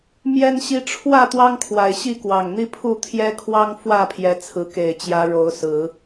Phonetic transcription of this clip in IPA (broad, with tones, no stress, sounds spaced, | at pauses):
m j ɛ˦ n ɕ i˦ ʈ͡ʂʰ w ä˥˨ t̪ w ɑ˦ ŋ kʰ w a˨˩ ɪ̯ ɕ i˥˨ k w ɑ˨˩ ŋ n̪ i˦ pʰ u˥˨ t̪ʰ j ɛ˦ kʰ w ɑ˦ ŋ f w ä˥˨ pʰ j ɛ˨˦ t͡sʰ ɹ̩˨˦ k e˨˩ ɪ̯ t͡ɕ j ä˨˦ ɻ o˨˦ ʊ̯ s ɹ̩˨˦